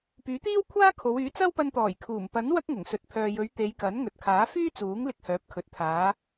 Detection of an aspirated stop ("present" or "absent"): present